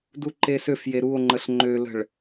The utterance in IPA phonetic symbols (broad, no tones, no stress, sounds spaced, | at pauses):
d u ǃ e s ø f j e ɾ u o̯ ŋ͡ǃ ə ɬ ŋ͡ǃ ø l ə̤ ɭ